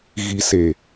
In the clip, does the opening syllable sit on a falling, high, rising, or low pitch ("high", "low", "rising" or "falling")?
low